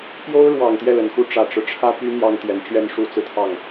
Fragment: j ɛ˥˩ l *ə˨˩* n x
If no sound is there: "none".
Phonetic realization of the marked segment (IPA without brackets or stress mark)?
ə˨˩